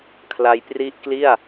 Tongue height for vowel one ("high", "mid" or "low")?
low